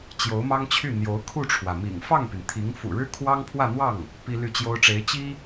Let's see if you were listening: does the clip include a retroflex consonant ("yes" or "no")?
yes